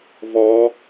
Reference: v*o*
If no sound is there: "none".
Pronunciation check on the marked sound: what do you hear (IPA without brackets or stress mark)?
ɔ